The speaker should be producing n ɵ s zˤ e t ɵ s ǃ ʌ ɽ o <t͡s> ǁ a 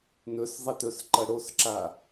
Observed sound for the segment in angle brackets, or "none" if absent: s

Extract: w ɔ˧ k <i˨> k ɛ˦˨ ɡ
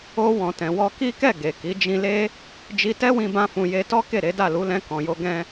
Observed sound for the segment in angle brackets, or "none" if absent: i˦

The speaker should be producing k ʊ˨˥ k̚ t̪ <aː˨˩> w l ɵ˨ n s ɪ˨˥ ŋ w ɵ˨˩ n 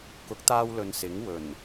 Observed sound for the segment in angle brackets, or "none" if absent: aː˧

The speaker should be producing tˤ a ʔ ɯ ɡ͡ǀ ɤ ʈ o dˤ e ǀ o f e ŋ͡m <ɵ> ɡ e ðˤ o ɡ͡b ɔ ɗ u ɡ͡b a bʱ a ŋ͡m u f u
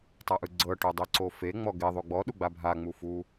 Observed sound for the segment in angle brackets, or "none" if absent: ɔ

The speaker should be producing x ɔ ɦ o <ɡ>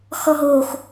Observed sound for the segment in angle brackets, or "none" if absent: x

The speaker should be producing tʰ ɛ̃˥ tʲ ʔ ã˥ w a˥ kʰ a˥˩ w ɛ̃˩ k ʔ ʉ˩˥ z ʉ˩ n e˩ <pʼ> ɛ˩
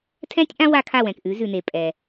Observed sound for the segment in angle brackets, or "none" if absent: pʼ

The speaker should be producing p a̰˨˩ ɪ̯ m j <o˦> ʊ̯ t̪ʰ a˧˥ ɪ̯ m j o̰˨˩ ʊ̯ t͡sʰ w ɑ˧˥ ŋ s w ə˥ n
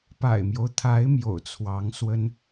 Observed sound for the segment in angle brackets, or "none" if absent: o˦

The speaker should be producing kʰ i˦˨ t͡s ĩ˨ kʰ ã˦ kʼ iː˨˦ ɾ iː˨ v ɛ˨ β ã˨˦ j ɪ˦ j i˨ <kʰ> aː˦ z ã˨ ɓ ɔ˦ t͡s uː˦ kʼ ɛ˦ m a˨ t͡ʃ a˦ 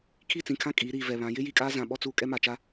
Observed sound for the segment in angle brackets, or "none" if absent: kʼ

